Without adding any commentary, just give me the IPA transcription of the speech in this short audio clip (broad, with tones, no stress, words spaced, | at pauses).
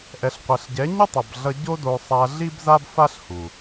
ʔɛ˨ɬqʷɛ˨ɬɟɛ˨˦ɲɯ˦ tˤʌ˨bɮʌ˧ ɟo˦do˧sˤa˧ ɮi˦bza˦bfa˦ɬhu˨